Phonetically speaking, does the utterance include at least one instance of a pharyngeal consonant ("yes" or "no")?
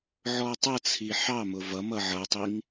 yes